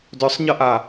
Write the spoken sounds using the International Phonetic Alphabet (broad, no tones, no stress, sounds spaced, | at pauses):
d œ sˤ ɲ ʌ ʔ a